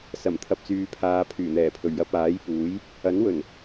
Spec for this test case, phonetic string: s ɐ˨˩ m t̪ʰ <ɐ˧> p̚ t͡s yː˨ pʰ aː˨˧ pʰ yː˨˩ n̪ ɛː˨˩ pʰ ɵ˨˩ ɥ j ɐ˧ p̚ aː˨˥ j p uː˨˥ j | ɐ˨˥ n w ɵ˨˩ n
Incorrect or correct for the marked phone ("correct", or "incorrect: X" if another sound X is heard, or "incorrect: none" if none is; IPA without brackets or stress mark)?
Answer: incorrect: ɐ˨